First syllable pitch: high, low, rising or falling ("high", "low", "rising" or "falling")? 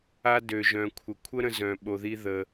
high